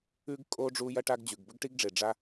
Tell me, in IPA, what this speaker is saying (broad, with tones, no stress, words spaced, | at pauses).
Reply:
ʉ˥ɡ kʼoː˥ ɖ͡ʐuː˥ jɐ˥ʈa˥ɡd͡ʑʉ˩ɡ bɵ˥ɡʈi˥ɡɖ͡ʐe˩ ɖ͡ʐa˥